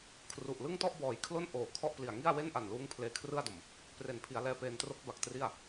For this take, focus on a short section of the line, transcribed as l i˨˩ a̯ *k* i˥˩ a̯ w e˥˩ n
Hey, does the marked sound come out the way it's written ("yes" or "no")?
no